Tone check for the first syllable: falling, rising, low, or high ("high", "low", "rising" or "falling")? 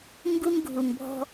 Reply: high